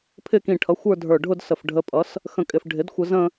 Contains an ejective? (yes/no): yes